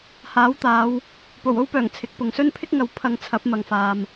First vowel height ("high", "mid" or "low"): low